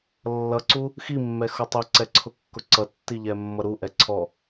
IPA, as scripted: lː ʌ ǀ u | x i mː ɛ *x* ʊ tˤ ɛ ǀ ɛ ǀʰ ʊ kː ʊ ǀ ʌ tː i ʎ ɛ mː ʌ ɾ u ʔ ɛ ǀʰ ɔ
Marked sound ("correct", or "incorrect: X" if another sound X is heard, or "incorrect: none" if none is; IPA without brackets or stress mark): correct